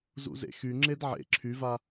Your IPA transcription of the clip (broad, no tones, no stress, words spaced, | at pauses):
zṵzḛxy ŋ͡ǁedʕḛ ǁʰyva